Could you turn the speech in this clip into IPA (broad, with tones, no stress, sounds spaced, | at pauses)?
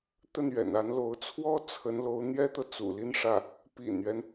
t̪ ə˥˩ n ɥ ɛ̰˨˩ n a˧˥ n l o˧˥ ʊ̯ t͡sʰ w ɔ˥ t͡sʰ ə˧˥ n l o˧˥ ʊ̯ n̪ j ɛ˥ t̪ ɤ˨ t͡s ṵ˨˩ l i˥˧ n ʂ ä˥˩ | p ḭ˨˩ n ɥ ɛ˦ n